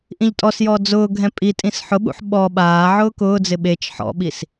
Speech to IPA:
ʔ ĩ ʎ tʼ ɔ s j ɔː d͡z ʊː ɡʱ ɛ̃ pʼ i tʼ ĩ s ħ ʊ ɓ ṵ ħ ɓ ɔ ɓ aː ʕ ʊː k ʊː d͡z ɪ ɓ e t͡ʃ ħ ɔ̰ ɓ i s

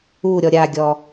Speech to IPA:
u ɾʲ ɔ ɾʲ a ɡʲ ɔ

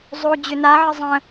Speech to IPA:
zˤ o d͡ʑ ʏ n a ʕ ə zˤ ə̃

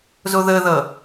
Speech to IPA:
z o ð ə ð ʌ

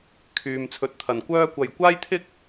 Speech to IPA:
kʰ yː˨ m t͡sʰ ɵ˨˥ t̚ t̪ʰ ɐ˨˩ n kʷ œː˥ kʷ ɐ˨˩ j kʷ aː˥ j t̪ʰ ɪ˥ k̚

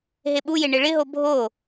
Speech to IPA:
ɦ e ɓ u j e ɳ ɪ ɭ ɪ ɦ o bʱ o

